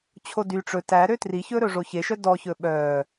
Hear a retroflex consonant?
yes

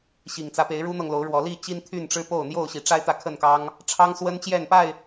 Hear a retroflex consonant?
yes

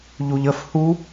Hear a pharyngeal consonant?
no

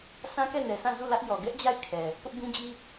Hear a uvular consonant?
no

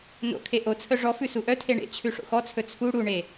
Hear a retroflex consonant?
yes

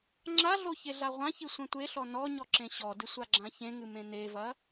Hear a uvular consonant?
yes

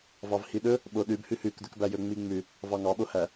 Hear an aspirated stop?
no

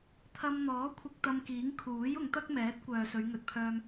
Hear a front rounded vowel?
yes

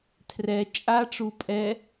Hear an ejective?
yes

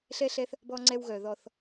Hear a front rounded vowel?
yes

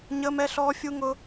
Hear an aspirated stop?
no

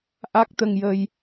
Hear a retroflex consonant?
no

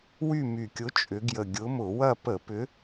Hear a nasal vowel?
no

